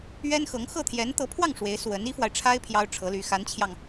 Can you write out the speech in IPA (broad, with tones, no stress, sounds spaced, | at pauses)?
ɥ ɛ˥ n x ɤ˧˥ ŋ x ɤ˥˩ t̪ʰ j ɛ˧˥ n t̪ ɤ˧˥ pʰ w ɑ˥˩ ŋ ʂ w e˧˥ ɪ̯ s w ə˧˥ n i˥ f w a˨ ɪ̯ ʈ͡ʂʰ a˥ ɪ̯ pʰ j ɑ˥ ʊ̯ ʈ͡ʂʰ ɤ˧˥ l y˧˥ x a˧˥ n t͡ɕʰ j ɑ˧ ŋ